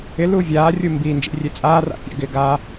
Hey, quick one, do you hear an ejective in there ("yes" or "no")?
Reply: yes